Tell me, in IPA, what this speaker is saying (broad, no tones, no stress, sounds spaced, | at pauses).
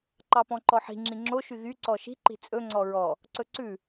ǃ ɑ p ɔ̃ ǃ ɔ ħ i̤ ŋ͡ǁ ĩ ŋ͡ǁ o ʃ y ɣ y ǀ ɔ ʃ i̤ ǃ i̤ t͡sʼ ɵ ŋ͡ǀ ɔ ɹ ɔ | ǀ ɵ ǀ ʉ